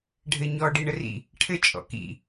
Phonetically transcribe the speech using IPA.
ɖʱ ɘ ɲ ɔ ɖ i ɳ ə r ḭ | ʈʰ ɘ t͡ʃʼ ɔ̰ k ḭ

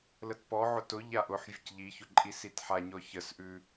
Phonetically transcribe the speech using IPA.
l ə t p ɔ ʕ ʊ t ʊ ʎ a ʔ ʊ ħ vʲ ə c ʎ i ç ʊ ǃʼ i s i t ħ a ɲ ɔ ç ə s ʔ ʉ

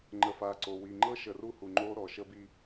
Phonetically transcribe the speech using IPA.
ŋ͡ǃ ə˨ f a˨ ǀ o˨ w i˨ ŋ͡ǃ ɤ˦ ʃ ə˨ r u˦ h u˨ ŋ͡ǃ o˦ ɾ ɔ˨ ʃ ə˦ b i˦

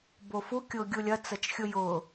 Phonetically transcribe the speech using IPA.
b o f u kʲ ʊː ɡʲ u lʲ ɐ t͡s ɐ t͡ʃ xʲ ʊ j ʊː

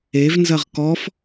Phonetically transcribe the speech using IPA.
e v n z ɐ ʁ k ɔ f

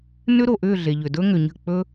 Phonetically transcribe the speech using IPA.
n ʏ˥ ɾ o˨ ʔ ʏː˥˧ ɮ e˨ ʎ ʏ˨ d ɵ˥ ŋ ʏ˨ ɲ ə̤˥˩ k͡p ɵ˥

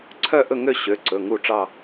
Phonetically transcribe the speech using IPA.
ǀʰ œ˦˨ ʔ ɵ˦˨ ŋ ø˦˨ ɕ ø˩˧˩ ǀ ɵ˩˧˩ ŋ u˦˨ ʈ͡ʂ ɑ˦˨

